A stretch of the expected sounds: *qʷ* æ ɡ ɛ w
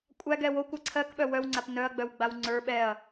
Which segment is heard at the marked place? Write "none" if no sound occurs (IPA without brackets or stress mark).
kʷʼ